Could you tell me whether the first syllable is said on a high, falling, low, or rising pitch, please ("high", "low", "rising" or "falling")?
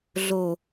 low